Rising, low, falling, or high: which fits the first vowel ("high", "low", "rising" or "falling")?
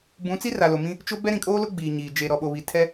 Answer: rising